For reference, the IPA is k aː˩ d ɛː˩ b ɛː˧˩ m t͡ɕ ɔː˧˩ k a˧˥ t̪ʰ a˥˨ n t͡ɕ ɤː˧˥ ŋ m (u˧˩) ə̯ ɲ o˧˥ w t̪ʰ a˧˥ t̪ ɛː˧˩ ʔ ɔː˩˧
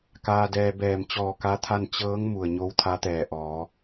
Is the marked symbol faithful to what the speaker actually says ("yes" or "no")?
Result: yes